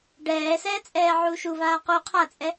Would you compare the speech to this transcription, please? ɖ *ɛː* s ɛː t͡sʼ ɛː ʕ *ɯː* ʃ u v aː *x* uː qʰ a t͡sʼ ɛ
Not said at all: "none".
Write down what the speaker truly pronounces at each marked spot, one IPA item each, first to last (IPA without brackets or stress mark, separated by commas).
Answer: ɛː, uː, q